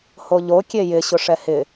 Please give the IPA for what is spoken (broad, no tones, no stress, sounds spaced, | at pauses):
h o ʎ o kʲ e j ɪ ɕ ʊ ʂ ɛ h ɪ